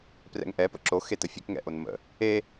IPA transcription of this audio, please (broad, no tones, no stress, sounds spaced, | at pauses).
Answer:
p r ɛ̰ ŋ ʔ ɛ p ə̰ ǁ o x e t ə fʲ e k ŋ ɛ̰ ʔ o n m ə̰ | e